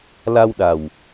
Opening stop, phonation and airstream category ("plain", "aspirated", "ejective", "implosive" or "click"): implosive